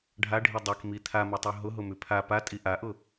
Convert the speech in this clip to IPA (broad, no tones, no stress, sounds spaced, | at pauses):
ɖʱ a ɖʱ i dˤ ɛ k m i t̪ʰ a m u tˤ u ɦ ʊ ɦ ʊ m ʉ pʰ a p a tʼ i ʔ a ʔ ʊ